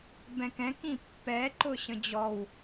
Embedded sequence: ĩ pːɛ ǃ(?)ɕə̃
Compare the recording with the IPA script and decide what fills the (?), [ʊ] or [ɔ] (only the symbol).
ʊ